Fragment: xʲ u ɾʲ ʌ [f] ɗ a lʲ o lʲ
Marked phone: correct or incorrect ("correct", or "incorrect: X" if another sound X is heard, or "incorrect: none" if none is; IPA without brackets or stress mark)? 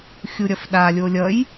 correct